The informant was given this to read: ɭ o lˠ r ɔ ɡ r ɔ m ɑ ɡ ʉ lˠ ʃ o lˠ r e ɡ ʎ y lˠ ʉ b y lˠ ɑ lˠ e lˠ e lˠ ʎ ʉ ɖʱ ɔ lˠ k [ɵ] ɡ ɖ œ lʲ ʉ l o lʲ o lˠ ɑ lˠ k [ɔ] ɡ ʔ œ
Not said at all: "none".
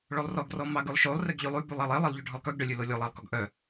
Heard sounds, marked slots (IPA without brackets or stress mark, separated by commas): œ, ɔ